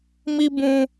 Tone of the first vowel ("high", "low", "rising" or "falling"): high